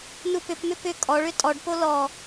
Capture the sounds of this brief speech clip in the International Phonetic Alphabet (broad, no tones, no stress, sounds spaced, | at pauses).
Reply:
n u p ʏ p m ʏ p ʏ kʼ ɔ ɭ ʏ tʼ ɔ ɖ p o l ɔ